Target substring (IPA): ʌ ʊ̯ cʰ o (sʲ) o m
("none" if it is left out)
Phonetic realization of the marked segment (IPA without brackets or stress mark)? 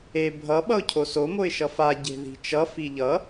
s